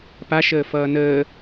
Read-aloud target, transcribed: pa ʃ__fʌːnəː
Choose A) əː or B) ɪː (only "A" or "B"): A